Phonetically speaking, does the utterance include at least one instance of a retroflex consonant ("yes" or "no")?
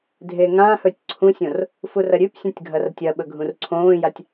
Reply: no